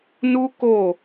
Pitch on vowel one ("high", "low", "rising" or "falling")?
high